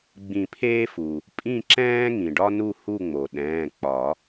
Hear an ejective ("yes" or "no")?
yes